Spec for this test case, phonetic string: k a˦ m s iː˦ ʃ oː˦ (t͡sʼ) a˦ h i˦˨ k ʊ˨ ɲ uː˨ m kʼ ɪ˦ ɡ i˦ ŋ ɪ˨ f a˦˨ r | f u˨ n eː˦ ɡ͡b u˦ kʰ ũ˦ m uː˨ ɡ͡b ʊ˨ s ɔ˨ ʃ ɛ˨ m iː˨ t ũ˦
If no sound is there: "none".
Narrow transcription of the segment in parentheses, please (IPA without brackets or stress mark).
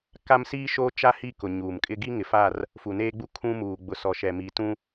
t͡ʃ